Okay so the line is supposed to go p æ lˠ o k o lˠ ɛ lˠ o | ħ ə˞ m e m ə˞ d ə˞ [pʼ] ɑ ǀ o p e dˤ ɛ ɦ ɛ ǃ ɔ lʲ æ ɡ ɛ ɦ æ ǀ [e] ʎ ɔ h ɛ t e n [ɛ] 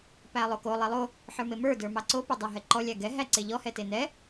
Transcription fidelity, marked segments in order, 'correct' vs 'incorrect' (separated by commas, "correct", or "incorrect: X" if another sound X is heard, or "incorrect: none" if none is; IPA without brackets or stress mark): incorrect: m, correct, correct